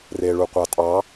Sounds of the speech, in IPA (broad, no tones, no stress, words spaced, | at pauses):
reɭuqʷɑtʼɑ